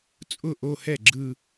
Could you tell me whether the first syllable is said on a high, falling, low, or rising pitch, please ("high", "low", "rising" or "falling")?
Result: falling